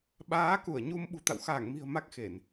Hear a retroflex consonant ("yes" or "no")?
no